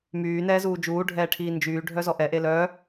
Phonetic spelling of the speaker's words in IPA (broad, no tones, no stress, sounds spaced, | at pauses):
m yː n ɛː z uː d͡ʒ uː ɖʱ ɛː ʈʰ iː n d͡ʒ yː ɖʱ œ z ɔ ʔ ɛ ʔ e l œ